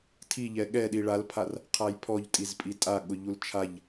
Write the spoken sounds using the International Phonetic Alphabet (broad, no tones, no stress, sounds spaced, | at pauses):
tʰ i ʎ ɛ ɠ ɛ ɗ i ɭ a l pʰ a r | qʰ a j pʰ ɔ ʎ tʼ i z pʼ i tʼ a ɠ ʊ ʎ u l t͡ʃʰ a ʎ